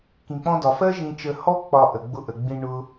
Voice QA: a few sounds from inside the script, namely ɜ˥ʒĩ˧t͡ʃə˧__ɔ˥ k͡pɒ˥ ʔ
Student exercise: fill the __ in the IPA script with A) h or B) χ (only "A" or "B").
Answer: A